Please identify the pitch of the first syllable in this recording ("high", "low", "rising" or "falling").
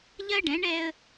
high